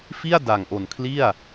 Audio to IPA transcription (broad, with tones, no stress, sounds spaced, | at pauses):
f i˥˩ a̯ d a˨˩ ŋ ʔ o˨˩ n kʰ l i˥˩ a̯